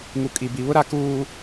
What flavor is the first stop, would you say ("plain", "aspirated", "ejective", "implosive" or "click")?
ejective